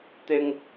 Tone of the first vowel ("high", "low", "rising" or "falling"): high